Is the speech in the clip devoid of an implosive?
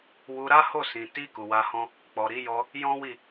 yes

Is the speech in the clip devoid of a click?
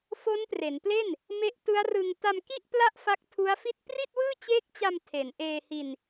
yes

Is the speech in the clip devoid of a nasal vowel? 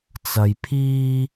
yes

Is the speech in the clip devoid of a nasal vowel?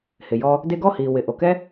yes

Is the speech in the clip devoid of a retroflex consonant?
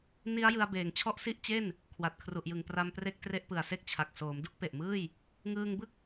yes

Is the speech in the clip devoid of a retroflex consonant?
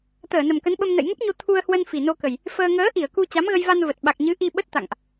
yes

